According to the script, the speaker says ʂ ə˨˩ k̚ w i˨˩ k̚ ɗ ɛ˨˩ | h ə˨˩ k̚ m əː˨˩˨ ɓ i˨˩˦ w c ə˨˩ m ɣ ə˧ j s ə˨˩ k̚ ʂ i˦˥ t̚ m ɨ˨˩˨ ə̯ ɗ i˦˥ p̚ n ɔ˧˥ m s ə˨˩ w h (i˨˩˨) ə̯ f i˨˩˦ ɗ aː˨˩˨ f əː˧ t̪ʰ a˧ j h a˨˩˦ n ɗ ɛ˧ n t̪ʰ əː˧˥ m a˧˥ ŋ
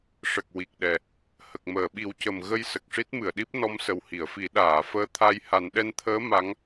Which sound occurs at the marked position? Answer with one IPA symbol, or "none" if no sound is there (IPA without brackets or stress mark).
i˨˩˨